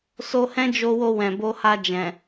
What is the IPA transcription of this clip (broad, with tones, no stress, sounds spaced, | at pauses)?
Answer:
s o˧ h ɛ̃˦ d͡ʒ o˧ w o˧ w ɛ̃˨ b o˧ h a˧ d͡ʒ ɛ̃˨